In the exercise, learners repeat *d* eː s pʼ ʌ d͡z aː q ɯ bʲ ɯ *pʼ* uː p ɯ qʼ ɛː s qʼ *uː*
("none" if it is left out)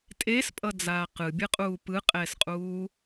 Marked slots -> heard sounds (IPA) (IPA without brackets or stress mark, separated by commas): tʼ, qʼ, uː